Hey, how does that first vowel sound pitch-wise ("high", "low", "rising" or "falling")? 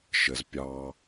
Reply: low